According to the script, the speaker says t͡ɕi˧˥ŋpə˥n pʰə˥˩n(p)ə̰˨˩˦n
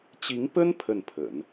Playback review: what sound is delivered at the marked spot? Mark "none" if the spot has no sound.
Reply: pʰ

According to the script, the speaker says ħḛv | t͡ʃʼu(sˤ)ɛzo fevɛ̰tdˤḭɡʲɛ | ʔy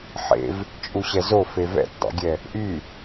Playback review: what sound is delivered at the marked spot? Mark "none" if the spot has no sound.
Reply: ɕ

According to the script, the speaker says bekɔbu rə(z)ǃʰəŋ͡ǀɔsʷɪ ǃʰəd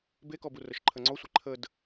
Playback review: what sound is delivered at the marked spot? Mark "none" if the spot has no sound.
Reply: ʃ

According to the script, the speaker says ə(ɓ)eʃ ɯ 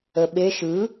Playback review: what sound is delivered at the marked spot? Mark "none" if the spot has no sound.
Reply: ɓ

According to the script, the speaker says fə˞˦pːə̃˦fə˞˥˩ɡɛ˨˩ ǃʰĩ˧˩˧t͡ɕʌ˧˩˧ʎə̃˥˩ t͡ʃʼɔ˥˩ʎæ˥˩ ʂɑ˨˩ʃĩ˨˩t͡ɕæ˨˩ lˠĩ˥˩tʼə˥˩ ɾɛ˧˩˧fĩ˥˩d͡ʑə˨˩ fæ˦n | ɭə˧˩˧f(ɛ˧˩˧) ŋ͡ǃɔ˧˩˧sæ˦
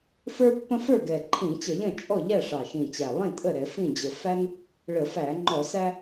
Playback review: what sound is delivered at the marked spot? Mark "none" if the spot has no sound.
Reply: æ˧˩˧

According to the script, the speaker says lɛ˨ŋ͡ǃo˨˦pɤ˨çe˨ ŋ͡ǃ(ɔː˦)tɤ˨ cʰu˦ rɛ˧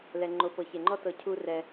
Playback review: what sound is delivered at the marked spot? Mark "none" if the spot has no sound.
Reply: ɔ˦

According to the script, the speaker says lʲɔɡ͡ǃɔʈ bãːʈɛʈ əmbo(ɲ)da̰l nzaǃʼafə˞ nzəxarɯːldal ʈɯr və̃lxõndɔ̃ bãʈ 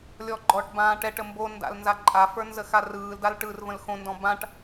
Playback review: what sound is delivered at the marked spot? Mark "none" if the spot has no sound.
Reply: n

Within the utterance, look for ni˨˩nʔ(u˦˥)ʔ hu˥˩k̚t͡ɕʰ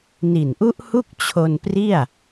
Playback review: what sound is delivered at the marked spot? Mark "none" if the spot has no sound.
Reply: u˦˥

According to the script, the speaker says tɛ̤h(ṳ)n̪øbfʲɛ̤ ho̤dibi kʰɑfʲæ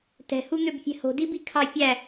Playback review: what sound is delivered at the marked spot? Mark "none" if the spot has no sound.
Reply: u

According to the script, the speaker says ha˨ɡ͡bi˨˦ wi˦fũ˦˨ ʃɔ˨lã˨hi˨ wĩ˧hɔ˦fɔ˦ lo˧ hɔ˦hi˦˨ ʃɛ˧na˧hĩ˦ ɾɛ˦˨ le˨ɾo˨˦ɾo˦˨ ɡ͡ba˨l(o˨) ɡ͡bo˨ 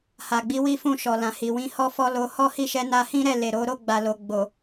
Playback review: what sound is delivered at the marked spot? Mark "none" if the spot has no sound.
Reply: o˨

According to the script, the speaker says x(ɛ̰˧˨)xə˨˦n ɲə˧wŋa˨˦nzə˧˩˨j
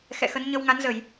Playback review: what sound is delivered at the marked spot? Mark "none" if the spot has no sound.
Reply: ɛ̰˧˨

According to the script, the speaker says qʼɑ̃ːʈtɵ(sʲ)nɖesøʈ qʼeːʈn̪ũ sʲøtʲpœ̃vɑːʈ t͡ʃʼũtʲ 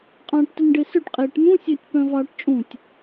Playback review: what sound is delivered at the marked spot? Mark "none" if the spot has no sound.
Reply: none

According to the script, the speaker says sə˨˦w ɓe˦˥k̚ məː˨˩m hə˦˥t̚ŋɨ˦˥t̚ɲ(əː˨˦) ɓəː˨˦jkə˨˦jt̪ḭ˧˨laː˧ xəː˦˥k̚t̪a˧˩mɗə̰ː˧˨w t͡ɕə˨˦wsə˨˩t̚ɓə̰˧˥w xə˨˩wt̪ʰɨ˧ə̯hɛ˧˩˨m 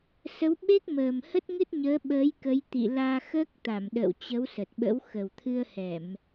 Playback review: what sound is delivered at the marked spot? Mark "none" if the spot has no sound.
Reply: əː˨˦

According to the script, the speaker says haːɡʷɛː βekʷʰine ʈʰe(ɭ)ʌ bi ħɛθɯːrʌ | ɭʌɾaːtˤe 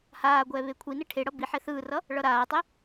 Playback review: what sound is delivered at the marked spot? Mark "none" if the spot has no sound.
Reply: ɽ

